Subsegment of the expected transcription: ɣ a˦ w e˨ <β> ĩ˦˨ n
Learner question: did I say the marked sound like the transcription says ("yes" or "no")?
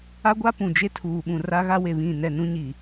yes